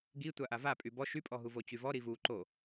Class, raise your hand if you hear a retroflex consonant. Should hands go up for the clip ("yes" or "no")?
no